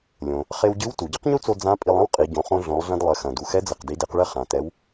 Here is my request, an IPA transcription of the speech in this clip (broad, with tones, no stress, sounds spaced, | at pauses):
lʲ õ˩ | χ e˧ w ɟ ɨ˧˥ w t u˩ ɟ ɨ˥ q ɲ u˥ t͡s o˧ d͡z ã˧˥ pʼ i˧ lˠ ɐ̃˥ w qʼ i˩˧ ɟ õ˩˧ χ õ˧ ɮ õ˩˧ lˠ ɮ ɐ̃˧ d lˠ ɘ˩˧ x ɐ̃˩ d u˩ x ɛ˧˥ d͡z ɘ˩ q d i˩˧ d e˩˧ q ɭ ɘ˧ χ ã˩ t ɛ˩˧ w